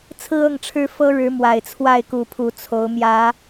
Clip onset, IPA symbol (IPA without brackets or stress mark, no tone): t͡sʰ